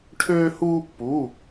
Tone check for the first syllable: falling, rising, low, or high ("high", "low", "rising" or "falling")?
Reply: high